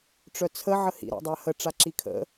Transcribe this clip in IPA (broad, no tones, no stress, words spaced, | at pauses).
ʈ͡ʂœt͡sʰə ʕəhḭ ɾa̰dˤahə ʈ͡ʂaǁikʰə̰